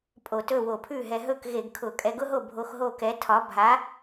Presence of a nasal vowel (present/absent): absent